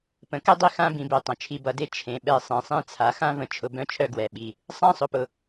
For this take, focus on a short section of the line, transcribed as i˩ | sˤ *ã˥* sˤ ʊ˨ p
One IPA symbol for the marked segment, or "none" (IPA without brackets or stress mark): ã˥